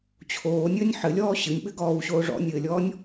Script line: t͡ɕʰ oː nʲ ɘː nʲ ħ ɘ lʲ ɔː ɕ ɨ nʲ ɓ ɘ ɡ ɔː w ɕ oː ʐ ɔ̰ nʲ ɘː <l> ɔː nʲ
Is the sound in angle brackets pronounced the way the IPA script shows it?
no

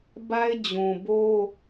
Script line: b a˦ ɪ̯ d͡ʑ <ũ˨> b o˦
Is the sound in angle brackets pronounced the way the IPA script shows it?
yes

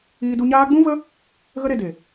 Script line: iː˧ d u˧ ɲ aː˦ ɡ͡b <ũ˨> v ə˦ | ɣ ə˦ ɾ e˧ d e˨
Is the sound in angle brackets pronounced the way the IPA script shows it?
no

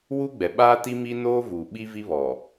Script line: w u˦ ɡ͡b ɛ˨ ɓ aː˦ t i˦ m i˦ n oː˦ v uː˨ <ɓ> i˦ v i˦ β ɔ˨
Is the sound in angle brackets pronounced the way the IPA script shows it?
yes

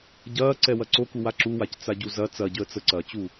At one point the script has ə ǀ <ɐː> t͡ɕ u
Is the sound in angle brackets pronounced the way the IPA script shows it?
yes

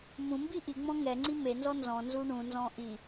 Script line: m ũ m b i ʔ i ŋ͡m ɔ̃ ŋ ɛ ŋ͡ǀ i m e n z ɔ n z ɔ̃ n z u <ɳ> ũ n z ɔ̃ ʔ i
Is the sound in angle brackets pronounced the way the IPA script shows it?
yes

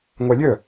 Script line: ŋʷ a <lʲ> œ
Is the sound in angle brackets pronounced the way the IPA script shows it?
yes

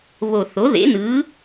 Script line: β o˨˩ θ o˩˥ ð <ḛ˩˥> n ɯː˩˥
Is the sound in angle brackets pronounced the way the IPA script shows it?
yes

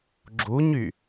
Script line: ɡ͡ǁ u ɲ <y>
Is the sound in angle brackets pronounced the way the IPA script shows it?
yes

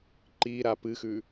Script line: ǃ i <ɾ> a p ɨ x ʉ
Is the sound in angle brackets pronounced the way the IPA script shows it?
yes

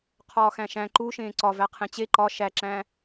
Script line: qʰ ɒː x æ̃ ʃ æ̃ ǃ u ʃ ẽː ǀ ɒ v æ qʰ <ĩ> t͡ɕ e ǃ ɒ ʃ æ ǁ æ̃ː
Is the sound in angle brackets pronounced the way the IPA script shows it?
no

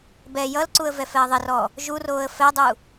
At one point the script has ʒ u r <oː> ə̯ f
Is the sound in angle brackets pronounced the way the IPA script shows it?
yes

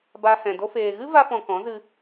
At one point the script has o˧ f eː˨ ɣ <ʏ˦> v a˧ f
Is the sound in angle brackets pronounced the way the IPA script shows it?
no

